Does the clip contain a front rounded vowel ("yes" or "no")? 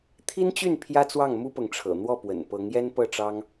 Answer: yes